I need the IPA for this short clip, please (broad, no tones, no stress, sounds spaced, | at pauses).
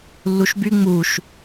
lː u ʃ b y ŋ͡m u ʃ